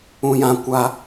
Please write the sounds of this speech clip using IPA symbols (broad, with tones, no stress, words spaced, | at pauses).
ũ˦jã˦kʷa˦